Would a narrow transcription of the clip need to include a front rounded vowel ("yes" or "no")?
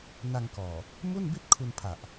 no